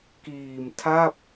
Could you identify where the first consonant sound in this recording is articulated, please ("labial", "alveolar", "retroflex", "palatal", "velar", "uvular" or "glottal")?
velar